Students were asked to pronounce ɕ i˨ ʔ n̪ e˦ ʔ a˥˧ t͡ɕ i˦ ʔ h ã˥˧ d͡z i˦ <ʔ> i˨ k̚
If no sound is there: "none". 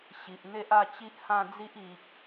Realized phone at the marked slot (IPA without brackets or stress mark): ʔ